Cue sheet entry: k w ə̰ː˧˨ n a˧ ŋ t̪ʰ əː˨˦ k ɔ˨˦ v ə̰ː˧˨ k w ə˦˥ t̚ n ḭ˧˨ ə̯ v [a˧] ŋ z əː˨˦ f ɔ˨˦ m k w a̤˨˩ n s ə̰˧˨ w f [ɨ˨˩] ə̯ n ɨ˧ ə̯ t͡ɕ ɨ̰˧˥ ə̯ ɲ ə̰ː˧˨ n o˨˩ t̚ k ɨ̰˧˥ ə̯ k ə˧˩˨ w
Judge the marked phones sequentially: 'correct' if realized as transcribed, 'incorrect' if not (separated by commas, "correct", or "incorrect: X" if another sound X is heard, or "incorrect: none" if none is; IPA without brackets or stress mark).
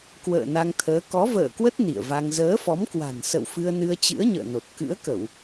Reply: correct, incorrect: ɨ˧